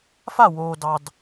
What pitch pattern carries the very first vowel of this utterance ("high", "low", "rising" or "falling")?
falling